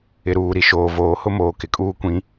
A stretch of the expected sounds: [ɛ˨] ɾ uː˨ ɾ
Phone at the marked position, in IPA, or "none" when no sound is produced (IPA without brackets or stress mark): ɪ˨